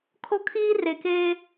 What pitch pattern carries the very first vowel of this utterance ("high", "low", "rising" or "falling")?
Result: high